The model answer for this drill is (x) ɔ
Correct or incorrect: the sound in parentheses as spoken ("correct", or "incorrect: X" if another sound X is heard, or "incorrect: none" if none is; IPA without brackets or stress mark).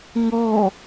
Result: incorrect: ŋ